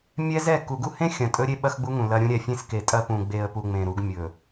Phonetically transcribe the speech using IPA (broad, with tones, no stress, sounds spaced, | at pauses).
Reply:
mʲ ɛ˦ z ɛ˦˨ k u˨ ɡ u˦ h ẽ˦ xʲ ɐ̃˨ tʼ ɵ˦ ɾʲ e˦ ɓ ɐ˦ x ɡ͡b u˦ ŋ ũ˨ l ɐ˦ ɾʲ ũ˦ ɾʲ ɛ˨ fʲ ẽ˦ s k e˨ tʼ ɐ˦ p ũ˨ ɡ͡b e˨ ə̯ p u˨ ŋ͡m ẽ˨ ɾ u˨˦ ɡ mʲ ɵ˨